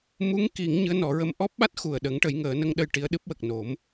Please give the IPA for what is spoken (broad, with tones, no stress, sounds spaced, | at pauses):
m u˧˥ ŋ k i˨˩˦ ŋ ɲ ɨ˧˥ ə̯ n ɔ˨˩˦ ɹ ə˧ m ʔ ɔ˦˥ p̚ ɓ a˦˥ t̚ x u˨˩ ə̯ ɗ ə˨˩˦ ŋ ʈ ə˨˩˦ j ŋ əː˨˩˦ n ə˧ ŋ ɗ ə˧ j ʈ i˧˥ ə̯ ɗ ɨ˦˥ p̚ w ə˨˩ k̚ n o˨˩˦ m